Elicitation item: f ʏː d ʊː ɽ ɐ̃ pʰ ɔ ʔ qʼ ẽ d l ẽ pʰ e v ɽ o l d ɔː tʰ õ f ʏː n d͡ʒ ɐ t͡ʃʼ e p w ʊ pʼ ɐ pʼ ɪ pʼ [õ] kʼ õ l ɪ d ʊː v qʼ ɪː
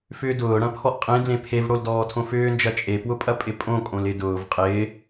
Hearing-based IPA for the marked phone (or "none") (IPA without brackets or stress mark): õ